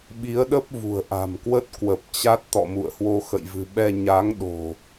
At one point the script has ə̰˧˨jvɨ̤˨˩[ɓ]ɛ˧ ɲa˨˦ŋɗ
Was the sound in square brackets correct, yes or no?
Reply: yes